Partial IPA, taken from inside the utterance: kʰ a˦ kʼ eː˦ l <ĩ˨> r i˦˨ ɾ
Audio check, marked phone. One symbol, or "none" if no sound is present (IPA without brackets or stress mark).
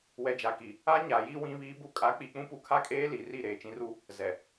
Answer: i˨